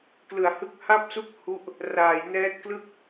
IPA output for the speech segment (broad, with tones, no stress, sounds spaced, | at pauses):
k l ɯ˨˩ a̯ h ɯ˦˥ k̚ h a˥˩ p̚ s u˥˩ k̚ h u˦˥ ʔ | r aː˨˩ j n ɛː˦˥ t̚ k l ɯ˥˩ k̚